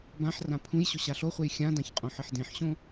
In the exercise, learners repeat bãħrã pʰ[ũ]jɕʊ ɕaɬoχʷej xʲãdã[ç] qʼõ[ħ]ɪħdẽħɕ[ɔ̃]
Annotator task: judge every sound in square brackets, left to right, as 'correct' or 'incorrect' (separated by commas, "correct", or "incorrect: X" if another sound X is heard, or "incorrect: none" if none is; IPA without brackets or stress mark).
correct, correct, correct, incorrect: õ